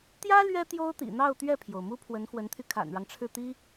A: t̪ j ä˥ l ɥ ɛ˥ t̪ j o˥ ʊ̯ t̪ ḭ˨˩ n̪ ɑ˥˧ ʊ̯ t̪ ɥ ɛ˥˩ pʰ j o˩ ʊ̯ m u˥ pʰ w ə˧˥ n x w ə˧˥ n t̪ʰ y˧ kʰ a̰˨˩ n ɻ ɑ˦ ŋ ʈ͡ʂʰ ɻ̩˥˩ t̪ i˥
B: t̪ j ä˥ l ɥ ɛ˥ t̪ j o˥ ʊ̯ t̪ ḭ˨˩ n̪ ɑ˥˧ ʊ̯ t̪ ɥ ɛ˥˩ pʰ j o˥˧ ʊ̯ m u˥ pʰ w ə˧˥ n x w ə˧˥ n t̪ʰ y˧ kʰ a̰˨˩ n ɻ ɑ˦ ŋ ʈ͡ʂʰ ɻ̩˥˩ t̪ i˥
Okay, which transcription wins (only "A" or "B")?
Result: A